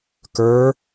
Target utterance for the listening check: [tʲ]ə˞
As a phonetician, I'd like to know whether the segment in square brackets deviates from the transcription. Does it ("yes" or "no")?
yes